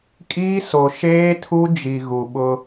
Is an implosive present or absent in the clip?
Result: present